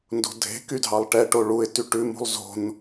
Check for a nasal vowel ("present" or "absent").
absent